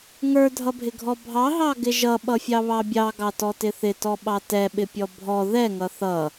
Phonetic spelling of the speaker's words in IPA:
ŋ ə˞ dʱ ʌ bʱ ɪ ɡʱ ɔ bʱ ɑ ɦ ɑ ɡ ɪ ʒ ʌ ɓ ʌ fʲ ɑ β ɑ bʲ ɑ ɡ ɑ t ɔ t ɪ θ ɪ t ɔ ɓ ɑ t ɛ ɓ ɪ pʲ ɔ bʱ ɔ ð ɛ ŋ ʌ θ ʌ

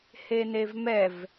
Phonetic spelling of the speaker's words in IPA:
h e n e v m ɛ v

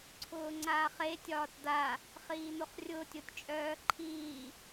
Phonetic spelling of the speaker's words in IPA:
ǀʰ ʊː ŋ͡ǀ aː χ e tʲ ɒː t d̪ a | χ iː n̪ o χ rʲ ʊː tʲ o tʲ t͡ʃʼ œː ǃʰ iː

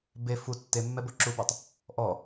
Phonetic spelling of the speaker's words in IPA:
b e f u tː e mː ɛ b o ǁ u b ɔ tˤ | ʔ ɔ

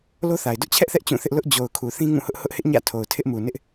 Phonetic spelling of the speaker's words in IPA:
l o˦ θ a˨ ɪ̯ d ʊ˦ ʔ t͡ɕʰ ɛ˦ ʔ θ ɛ˦ ʔ t͡ɕ ũ˦˨ θ ɪ˦ ʔ l ʊ˦ ʔ d͡ʑ o˨ ʊ̯ kʰ u˨ θ ĩ˦ ŋ ũ˦˨ h ʊ˦ ʔ h ʊ˦ ʔ h ɪ˦ ʔ ɲ ä̰˦˨ tʰ o˨ ʊ̯ tʰ ɪ˦ ʔ m u˨ n ɪ˦ ʔ

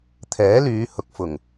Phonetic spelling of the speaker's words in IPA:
t̪ʰ ɛː˨˥ l yː˨˧ h ʊ˨ k̚ f ʊ˨˩ ŋ

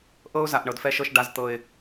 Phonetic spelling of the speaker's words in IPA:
ʔ ɤ˦ ʊ̯ z a˨ ʔ ɳ ɤ˨ d f ɛ˦ ʃ ɤ˦ ʃ ɖ a˦ z t̪ ɤ˦ ɪ̯

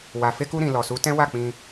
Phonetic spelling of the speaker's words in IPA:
w a˨ f e˧ k u˧ ɾ ĩ˨ l ɔ˨ s u˨˦ t ɛ̃˦ w a˦˨ k͡p ĩ˧

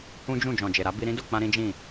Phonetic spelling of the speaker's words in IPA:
h ũ˦ d͡ʒ ũ˦˨ d͡ʒ ɔ̃˨ d͡ʒ e˨ ɾ a˨˦ b i˧ ɾ ĩ˦ d o˦˨ k͡p ã˧ ɾ ĩ˦ d͡ʒ ĩ˦˨

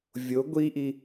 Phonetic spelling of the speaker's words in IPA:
vʲ o ɡʷ i ʔ i

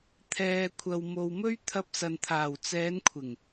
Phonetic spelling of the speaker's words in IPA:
t̪ʰ ɛː˨ kʷʰ ɐ˨ w m o˨ w m ɵ˥ ɥ t̪ʰ ɐ˧ p̚ s ɐ˨ n t̪ʰ aː˨˩ w t͡s ɛː˨˧ n kʷʰ ɪ˨˩ ŋ

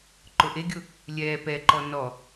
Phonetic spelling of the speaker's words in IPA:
ǃ ʊ ʔ e ɡʲ ʊ | lʲ ɛː p ɛ ǃ ɔ n ɔ

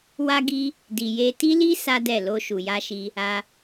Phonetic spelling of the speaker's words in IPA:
w a˦ ɡ i˦ | d i˨ j e˧ t i˦ l i˦ s a˦ d ɛ˦˨ l o˧ ʃ u˨ j a˧ ʃ i˧ | a˧

